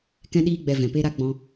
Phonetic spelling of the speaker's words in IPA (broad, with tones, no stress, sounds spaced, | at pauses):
k ɛ̃˧ ɗ iː˧ ɡ͡b ɛ˧ v ɛ̃˨ p e˦ ɾ a˦ ɡ͡b ɔ̃˧